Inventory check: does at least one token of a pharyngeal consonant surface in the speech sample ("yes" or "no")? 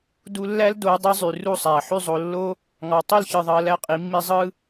yes